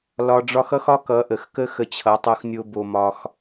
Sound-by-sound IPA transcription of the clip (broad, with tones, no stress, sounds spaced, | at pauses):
l ɒ˧ ɖ͡ʐ ɒ˦ x ʌ˦ x ɒ˦ k ʌ˨˦ ʔ ə˨ x k ə˦ x ə˧ t͡ɕʰ ʌ˨˦ tˤ o˧ x nʲ o˦ b o˧ m ɒ˧ x